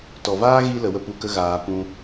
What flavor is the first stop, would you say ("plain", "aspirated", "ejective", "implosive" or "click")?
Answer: plain